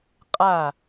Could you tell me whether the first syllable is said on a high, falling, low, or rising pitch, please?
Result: falling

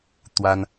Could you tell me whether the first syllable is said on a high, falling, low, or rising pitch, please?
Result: high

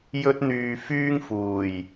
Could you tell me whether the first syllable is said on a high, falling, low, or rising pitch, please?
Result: high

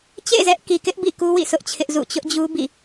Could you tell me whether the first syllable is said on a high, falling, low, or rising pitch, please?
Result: falling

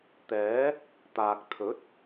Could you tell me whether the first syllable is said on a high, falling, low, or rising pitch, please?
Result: rising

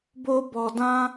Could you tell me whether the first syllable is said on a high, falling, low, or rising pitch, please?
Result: high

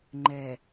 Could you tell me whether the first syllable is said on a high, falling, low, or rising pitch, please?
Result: low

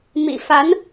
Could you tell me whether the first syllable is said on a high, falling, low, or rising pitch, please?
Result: low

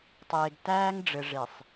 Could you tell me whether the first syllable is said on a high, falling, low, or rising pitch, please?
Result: low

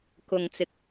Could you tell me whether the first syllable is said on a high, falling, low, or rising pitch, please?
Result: low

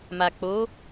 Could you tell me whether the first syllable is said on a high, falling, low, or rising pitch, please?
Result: low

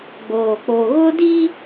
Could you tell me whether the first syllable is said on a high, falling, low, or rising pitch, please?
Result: low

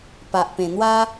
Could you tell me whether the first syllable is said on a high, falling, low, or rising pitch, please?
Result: low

